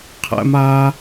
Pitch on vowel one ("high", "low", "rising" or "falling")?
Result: high